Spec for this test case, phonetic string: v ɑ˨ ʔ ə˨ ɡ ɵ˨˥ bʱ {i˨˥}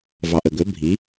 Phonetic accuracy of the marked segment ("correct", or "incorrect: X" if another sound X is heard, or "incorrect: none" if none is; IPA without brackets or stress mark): correct